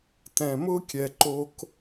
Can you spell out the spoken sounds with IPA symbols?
tɛ̃˧mʊ˥kʲɛ˧ ǃo˥k

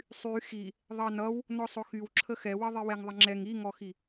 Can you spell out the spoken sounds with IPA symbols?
sˤy xi | ðˤɑnʌw | nɔsˤʊxyw ǁʰəxɛwʌ ðˤiwɛŋðˤəŋ͡ǁɛŋ iŋɔxi

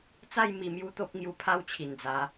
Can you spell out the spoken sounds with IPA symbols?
t͡sa˥˧j mi˧mju˦ t̪o˦p̚ ŋju˧pʰa˥˧w t͡ɕʰi˨˩nd͡za˨˦

